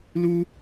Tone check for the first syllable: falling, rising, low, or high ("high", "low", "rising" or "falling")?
high